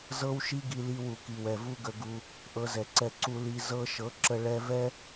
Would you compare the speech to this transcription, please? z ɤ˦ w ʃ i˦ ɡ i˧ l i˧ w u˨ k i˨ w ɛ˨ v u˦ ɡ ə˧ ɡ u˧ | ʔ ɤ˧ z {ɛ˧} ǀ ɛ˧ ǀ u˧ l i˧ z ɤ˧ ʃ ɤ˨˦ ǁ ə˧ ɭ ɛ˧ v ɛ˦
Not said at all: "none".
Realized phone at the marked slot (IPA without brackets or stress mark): ɛ˨